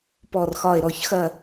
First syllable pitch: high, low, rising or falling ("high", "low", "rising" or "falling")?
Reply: falling